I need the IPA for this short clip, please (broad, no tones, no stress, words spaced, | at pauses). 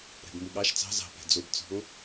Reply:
ɾɛ̤bmuɠɑʃ t͡sɑ̤ zɑ̤pɛ̤ d͡zobt͡sɔ̤ŋ